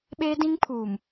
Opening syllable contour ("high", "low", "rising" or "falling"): high